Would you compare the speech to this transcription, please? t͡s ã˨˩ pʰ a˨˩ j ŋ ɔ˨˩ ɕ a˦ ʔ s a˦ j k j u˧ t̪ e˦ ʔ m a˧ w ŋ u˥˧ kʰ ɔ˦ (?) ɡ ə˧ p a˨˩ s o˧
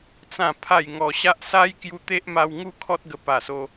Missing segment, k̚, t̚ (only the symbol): t̚